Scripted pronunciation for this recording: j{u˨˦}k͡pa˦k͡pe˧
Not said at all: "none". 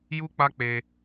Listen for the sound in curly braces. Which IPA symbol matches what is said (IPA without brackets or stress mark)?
u˦